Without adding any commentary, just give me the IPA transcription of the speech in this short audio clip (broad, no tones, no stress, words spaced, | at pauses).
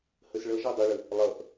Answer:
həsɭʌʒɔ dˤʌɭə | lˠʌʔ